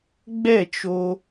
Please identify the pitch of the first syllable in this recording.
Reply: falling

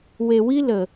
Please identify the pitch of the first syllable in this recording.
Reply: low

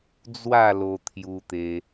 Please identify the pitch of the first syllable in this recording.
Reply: falling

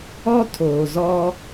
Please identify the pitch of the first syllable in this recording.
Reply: high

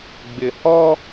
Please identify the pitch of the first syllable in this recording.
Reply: low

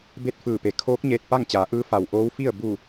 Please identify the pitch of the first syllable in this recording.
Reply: falling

